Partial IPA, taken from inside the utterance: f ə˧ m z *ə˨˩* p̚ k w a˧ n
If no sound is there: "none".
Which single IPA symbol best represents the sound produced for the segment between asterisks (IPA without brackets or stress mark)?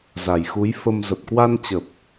ə˨˩